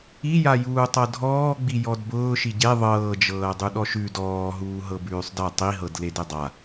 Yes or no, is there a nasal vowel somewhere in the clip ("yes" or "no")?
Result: no